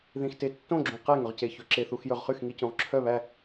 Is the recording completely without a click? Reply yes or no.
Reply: no